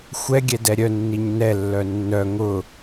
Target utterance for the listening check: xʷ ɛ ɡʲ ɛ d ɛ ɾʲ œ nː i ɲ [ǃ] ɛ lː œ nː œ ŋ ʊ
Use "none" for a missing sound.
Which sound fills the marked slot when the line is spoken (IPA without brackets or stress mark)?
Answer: n